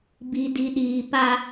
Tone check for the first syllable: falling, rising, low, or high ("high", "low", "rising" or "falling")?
low